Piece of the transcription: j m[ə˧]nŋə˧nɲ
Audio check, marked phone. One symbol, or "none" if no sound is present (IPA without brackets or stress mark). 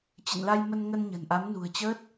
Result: ə˧